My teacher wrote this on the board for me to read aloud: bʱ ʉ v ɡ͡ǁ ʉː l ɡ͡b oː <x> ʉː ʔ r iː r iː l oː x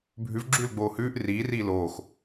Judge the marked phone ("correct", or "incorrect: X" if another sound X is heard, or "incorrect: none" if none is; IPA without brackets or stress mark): incorrect: h